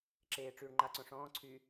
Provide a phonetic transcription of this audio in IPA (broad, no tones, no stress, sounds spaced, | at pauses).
ǁ eː ʈ͡ʂ yː ɳ ŋ͡ǃ a ǀ õ ʂ ɔ̃ː ǀʰ y